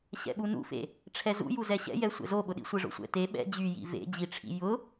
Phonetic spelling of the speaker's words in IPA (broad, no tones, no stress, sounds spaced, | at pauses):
ɕ ɛ̰ ɓ u n ṵ f ḛ | ʈ͡ʂʰ ɛ z ṵ j u z ɛ ɕ ɛ̰ j ɛ sʷ ɛ̰ z o ɓ ʊ ɗ ḭ sʷ e ʐ o̰ sʷ ɛ̰ t e ɓ ɛ̰ d͡ʑ y j ḭ v ḛ d͡ʑ i ʈ͡ʂʰ ḭ j ʊ